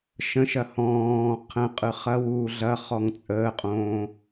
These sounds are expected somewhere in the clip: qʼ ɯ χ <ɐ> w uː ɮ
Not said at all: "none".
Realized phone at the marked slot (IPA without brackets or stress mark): ɐ